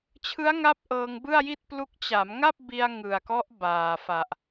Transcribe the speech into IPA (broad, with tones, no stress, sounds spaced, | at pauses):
t͡ɕʰ ɯ˦˥ a̯ ŋ a˦˥ p̚ ʔ ɤː˧ ŋ b ɯ˥˩ a̯ j i˥˩ t̚ p l u˦˥ k̚ t͡ɕ a˩˦ m ŋ a˥˩ p̚ b i˧ a̯ ŋ ɯ˨˩ a̯ k ɔ˦˥ ʔ b aː˨˩ f a˨˩ ʔ